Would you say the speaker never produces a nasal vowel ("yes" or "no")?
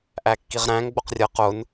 no